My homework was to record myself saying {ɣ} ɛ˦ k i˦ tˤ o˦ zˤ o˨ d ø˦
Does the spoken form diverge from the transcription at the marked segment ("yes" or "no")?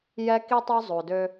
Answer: yes